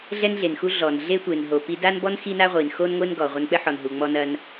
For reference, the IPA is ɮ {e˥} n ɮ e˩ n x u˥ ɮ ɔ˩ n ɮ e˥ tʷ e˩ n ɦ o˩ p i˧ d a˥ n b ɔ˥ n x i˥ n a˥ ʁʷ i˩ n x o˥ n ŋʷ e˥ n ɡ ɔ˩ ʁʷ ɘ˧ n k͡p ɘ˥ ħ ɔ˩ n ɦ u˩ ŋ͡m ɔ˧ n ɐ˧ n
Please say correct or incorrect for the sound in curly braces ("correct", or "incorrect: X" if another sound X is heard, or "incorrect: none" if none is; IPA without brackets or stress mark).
incorrect: ɛ˥